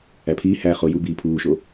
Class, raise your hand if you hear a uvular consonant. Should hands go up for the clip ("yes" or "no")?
yes